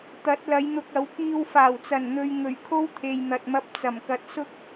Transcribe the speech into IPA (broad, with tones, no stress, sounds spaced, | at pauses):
t̪ ɐ˨˥ t̚ l ɐ˨˧ j n̪ ʊ˧ k̚ ɐ˨˥ w k iː˧ w f aː˨˩ w t͡s ɐ˨˩ n n̪ ɵ˨ ɥ ŋ ɵ˨˩ ɥ kʰ o˥ w t̪ʰ e˨ j n̪ ɐ˨ t̚ m ɐ˧ p̚ t͡s ɐ˨˩ m k ɐ˨˥ t̚ s ʊ˥ k̚